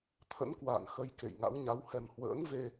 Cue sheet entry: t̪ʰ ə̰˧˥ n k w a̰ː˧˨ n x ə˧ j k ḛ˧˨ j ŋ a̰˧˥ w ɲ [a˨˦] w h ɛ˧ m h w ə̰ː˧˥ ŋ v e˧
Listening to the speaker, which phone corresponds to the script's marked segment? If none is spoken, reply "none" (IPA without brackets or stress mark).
a˨˦